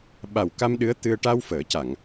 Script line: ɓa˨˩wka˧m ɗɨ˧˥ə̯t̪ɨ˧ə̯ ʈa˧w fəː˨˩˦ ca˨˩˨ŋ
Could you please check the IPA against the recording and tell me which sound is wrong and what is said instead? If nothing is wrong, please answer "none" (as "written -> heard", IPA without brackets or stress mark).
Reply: none